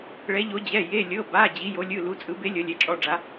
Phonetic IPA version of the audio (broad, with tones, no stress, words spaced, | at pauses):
ɭɛ˩˧ʎo˩˧d͡ʑɛ˩˧˩ je˩˧˩lʲɤ˩˧˩ba˩˧˩ d͡ʑi˩˧jo˩˧lʲɯ˩˧˩ lu˩˧t͡sʼɯ˩˧ be˩˧ lʲɤ˩˧lʲɛ˩˧˩t͡ʃʼɔ˩˧˩ɖ͡ʐa˩˧